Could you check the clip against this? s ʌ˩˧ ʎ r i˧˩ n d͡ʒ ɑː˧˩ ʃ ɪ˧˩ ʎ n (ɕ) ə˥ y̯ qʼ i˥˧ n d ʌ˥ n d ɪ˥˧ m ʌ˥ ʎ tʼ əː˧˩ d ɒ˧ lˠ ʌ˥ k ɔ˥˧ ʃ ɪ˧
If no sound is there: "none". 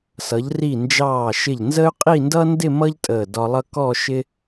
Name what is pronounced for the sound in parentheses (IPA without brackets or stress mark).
z